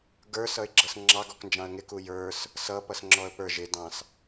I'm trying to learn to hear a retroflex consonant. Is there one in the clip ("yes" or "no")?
no